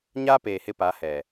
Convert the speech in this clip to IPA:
ɲ a˦ p eː˨ h ɪ˦ p a˨˦ h ɛ˨

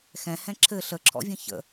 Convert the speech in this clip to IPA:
x ɛ̃ h ɛ̃ ǁʰ ɘ ɬ ə ǁʰ ɔ̰ vʲ ə̃ ç ə̰

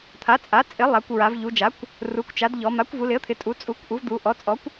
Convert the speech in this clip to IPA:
t̪ʰ a˩˥ t͡sʼ a˩˥ t͡sʼ ɪ˩˥ lˠ a˩˧ kʷ ɹ a˩˧ v ʎ u˩˧ d͡ʒ a˩˥ kʷ | r u˩˥ kʷ t͡ʃ a˩˥ d ʎ ɔ˩˧ m a˩˥ kʷ v u˩˧ l ɪ˩˥ ə̯ t̪ʰ ɪ˩˧ tʼ u˩˥ t͡sʼ u˩˥ kʷ ʔ u˩˥ v d̪ u˩˧ ʔ ɔ˩˥ t͡sʼ ɔ˩˥ kʷ

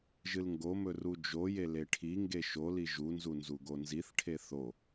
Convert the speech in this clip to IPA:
ʒ ɨ l ŋ ɡ o m ɵ r u d͡ʒ o j e l e ʈʰ i ŋ ɡ e ʃ o l i ʒ u n z u n z u ɡ o n z i θ ʈʰ e θ o

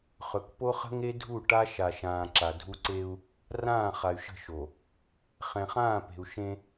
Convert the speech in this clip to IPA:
χ ɵ˨ k p o˦ χ ə̤˦ ŋ e˦ dʱ u˦˨ ʈ a˦ ʃ a˨ ʃ ãː˨ ǁ a˨ dʱ u˦ ǀ e˦ u̯ | r ãː˦˨ χ a˨ y̯ ʃ ə̤˦˨ ʃ o˨ | χ ɛ̃˨ χ ãː˦˨ p e̤˨ u̯ ʃ ẽ˦

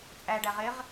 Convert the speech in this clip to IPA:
t͡sʼ æ ɖ æ ʁ ɪ ʁ

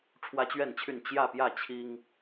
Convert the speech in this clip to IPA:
ʈ͡ʂʰ w ä˦ t͡ɕ ɥ ɛ˥˨ n t͡ɕʰ y˥˨ n t͡ɕ j ä˥˨ p j ä˥˨ t͡ɕʰ i˦ ŋ

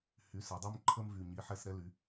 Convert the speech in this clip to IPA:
h y˩˥ s ɛ˩˧ dˤ ø˦ m ǃʰ ə˦ m v y˨˩ ɲ i˩˥ ħ ɛ˦˨ s ɾ ɛ˦ l y˩˧

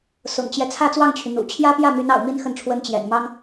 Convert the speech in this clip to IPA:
s ʊ̰˨˩ ŋ t͡ɕ j ɛ˦ t͡sʰ ä˥˧ t͡s w ɑ˥˩ ŋ t͡ɕʰ y˩ n̪ ṵ˨˩ t͡ɕʰ j ä˥ p j ä˥˩ m y˧˥ n ɑ̰˨˩ ʊ̯ m i˥ n x ə˥˩ n ʈ͡ʂʰ w ə˥ n t͡ɕ j ɛ̰˨˩ n m ɑ˥ ŋ

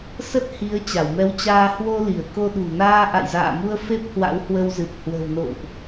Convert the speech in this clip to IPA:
s ə˦˥ t̚ h i˨˦ ə̯ t͡ɕ a˧˩ w m ɛ˨˦ w t͡ɕ aː˧ h w o˧ l i˧˩ ə̯ k o˧ ɗ ṳ˨˩ n aː˧ ʔ a̰˧˨ j z a̰ː˧˨ m u˧ ə̯ f e˦˥ p̚ h w a̰˧˥ w h w ə˧ w z ɨ˨˩ p̚ h w ə̤˨˩ w n o̰˧˨ w ʔ

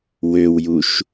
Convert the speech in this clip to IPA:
w ø w j u ʃ

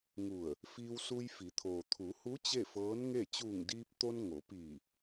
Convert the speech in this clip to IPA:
ŋ u˧˩ ə̯ | f iː˧ w s u˧ j f i˩˧ t̪ʰ oː˩ t̪ʰ u˩˧ h u˧˥ t͡ɕ e˥˨ f ɤː˧˥ n ŋ e˥˨ t͡ɕ uː˧˩ ŋ d iː˧ p̚ t̪ o˧ n ŋ o˩˧ p iː˧˩

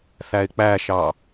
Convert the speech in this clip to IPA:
θ æ ɪ̯ k͡p æ ʃ ɑ

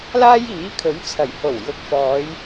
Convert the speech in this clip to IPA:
l aː˥ j iː˨˥ kʰ ɵ˨˥ ɥ t͡sʰ ɐ˨˩ j h o˨˩ w j ʊ˨˥ k̚ f ɔː˨˧ j

